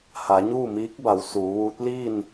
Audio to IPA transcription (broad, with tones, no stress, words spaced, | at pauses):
ha˩˧ɲuː˥˨miː˧˥k̚ba˩˧w suː˩˧ʋuː˧˥t̚ liː˥˨n